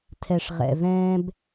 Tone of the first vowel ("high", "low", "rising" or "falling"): low